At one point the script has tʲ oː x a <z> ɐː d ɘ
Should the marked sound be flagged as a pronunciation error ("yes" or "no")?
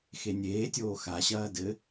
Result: yes